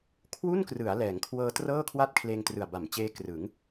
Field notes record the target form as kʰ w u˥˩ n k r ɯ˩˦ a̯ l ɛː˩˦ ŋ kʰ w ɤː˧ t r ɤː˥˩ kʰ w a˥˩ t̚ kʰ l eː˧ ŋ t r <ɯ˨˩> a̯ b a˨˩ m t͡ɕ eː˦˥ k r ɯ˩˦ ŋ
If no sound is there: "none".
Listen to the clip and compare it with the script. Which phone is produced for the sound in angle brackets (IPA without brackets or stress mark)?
ɯ˨˩